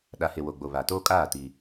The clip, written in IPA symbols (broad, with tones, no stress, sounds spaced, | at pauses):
ɗ a˨ h e˨ w o˨ ɡ͡b o˨ β a˨ t oː˦ kʼ aː˦˨ t i˦